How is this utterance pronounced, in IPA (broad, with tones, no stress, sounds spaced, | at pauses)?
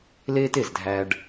l eː˥ t e˩ z dʱ æ˧ ɖ